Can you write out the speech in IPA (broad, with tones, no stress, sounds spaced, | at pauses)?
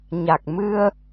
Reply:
ɲ a˨˩ k̚ m ɨ˧ ə̯